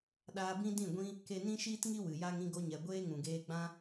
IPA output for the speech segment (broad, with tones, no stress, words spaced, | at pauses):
ɗaː˧bĩ˦dĩ˦˨ɡʷĩ˦ | ke˧nĩ˦ʃiː˦tŋi˦ wɨ˨ja˦ŋ ĩ˧ɡo˧ɲɛ˨ ɡʷeː˦ŋũ˨ɡeː˧ɡ͡bã˦